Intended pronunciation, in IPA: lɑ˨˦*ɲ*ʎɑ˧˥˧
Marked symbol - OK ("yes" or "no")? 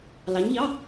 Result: yes